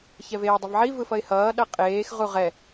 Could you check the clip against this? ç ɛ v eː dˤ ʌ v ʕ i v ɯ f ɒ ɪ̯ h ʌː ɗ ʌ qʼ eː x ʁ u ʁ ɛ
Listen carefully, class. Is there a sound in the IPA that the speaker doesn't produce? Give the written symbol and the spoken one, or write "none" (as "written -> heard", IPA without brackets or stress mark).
ɒ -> ʌ